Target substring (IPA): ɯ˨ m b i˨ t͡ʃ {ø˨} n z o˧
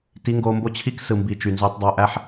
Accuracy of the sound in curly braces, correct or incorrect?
incorrect